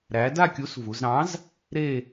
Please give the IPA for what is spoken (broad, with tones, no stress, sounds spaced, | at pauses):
ɾ æ˨˥ d a˥˧ kʲ u˨˥ s v u˩˧ z ɾ ɑ̃˨˥ z | ɾ e˥˧